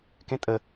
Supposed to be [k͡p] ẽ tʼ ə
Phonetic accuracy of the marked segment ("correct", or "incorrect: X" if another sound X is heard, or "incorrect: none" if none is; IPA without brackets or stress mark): incorrect: k